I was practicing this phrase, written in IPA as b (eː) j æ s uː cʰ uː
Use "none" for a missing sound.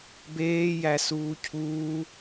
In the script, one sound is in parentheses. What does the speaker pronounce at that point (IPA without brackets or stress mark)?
eː